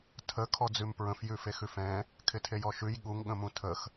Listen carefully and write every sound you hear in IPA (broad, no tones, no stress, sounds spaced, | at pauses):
tʰ ə kʰ ɔ d͡z ʉ m p ɹ ə̃ f j ʉ f e x ʉ f ɛ̃ | kʰ ɪ tʰ e j ɔ ʃ ʉ j ɠ u ŋ ɠ ə̃ m ũ tʰ ə x